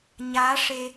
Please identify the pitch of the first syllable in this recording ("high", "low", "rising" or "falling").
rising